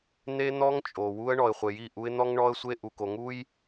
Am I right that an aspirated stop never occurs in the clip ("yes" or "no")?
yes